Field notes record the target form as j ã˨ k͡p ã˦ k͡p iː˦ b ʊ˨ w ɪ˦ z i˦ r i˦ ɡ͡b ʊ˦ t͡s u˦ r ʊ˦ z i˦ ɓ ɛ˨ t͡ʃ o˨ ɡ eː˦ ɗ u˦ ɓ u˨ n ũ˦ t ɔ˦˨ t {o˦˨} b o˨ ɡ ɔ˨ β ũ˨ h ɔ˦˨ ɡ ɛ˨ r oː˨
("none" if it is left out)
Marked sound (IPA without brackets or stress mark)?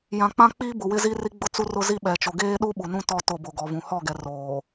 o˦˨